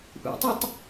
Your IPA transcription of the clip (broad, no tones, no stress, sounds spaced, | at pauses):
ʔ ṵ tˤ ɛ tˤ